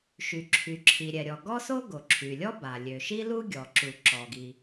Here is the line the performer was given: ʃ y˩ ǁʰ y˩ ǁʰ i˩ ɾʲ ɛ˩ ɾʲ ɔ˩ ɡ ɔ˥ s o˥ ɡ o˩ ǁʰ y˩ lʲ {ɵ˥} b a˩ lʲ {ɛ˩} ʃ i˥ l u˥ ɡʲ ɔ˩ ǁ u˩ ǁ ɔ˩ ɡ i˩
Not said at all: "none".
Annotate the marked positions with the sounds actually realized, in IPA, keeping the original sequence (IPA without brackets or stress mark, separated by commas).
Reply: ɔ˥, ø˩